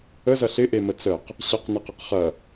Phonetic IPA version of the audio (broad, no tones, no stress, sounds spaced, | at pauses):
ə z ɐ ɬ ɪ ʔ e m ə t͡s ə q | ɕ ɐ q n ɪ q ɪ q χ ɐ